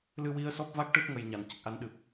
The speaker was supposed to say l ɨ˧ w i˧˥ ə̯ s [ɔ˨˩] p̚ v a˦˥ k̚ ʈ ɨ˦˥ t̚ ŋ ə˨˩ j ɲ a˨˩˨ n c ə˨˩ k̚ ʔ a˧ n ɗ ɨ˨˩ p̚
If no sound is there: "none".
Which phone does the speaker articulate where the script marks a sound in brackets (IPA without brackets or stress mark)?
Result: ɔ˦˥